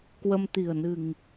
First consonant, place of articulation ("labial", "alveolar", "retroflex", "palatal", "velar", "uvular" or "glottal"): velar